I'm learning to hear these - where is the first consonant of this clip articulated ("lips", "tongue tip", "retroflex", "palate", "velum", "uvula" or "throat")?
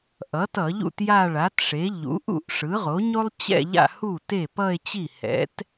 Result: throat